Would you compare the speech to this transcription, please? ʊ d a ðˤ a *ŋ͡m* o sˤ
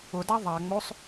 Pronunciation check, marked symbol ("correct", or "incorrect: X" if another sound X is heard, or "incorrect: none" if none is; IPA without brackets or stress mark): correct